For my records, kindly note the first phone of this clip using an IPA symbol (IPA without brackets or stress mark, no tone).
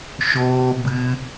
ʃ